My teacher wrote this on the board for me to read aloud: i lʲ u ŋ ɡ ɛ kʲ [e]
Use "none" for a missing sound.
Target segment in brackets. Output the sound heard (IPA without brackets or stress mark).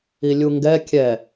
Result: ɛ